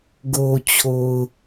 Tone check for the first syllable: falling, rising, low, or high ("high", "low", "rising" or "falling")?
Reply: low